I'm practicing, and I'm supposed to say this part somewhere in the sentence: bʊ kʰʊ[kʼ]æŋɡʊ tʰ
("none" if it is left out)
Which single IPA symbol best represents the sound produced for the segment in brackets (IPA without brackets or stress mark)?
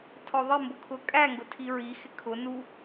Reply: kʼ